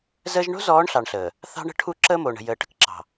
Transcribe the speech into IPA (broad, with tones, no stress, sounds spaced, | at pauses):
z əː˦ ʒ ɳ o̤˦ z ɔː˨˦ ɳ ɬ ɑ˨ ɳ ɬ əː˨ | θ ɑ̤˦ ɳ ə̤˦ ʈʰ u˦ ǁ əː˦ m oː˨ ɳ ə̤˨ j əː˨ ʈ ə̤˦ k ǁ ɑ̤˨